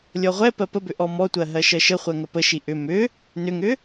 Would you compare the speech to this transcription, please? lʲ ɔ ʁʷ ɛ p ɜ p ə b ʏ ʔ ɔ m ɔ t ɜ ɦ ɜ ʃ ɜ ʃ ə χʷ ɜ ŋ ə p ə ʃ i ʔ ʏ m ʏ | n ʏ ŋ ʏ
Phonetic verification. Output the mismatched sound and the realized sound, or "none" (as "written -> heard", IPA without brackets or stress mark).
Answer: t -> tʷ